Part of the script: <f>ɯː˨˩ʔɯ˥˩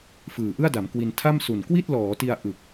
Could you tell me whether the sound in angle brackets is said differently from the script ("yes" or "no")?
no